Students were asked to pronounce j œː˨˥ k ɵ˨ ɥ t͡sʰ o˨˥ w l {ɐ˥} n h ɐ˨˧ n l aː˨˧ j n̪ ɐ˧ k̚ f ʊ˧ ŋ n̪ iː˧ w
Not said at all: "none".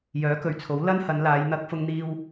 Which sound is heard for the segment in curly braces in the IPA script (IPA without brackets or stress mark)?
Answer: ɐ˥